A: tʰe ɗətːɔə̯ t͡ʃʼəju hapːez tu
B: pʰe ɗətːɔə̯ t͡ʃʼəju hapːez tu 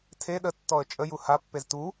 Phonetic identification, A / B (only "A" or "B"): A